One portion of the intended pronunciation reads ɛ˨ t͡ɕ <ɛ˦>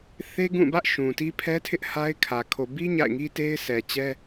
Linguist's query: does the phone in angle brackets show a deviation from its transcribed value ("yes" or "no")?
no